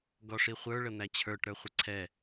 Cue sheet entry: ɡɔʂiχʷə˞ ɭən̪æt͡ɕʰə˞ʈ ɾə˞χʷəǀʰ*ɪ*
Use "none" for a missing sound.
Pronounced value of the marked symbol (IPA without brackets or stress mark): ɛ